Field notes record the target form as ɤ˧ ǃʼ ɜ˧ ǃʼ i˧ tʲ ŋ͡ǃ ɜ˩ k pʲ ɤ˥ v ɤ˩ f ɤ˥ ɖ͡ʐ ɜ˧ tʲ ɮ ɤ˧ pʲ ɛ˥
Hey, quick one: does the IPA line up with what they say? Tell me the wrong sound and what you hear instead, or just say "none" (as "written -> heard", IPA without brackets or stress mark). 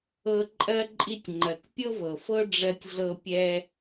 none